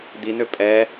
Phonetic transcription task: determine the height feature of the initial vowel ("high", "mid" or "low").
high